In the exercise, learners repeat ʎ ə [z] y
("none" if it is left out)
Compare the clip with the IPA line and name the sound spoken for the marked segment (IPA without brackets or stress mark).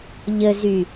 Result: z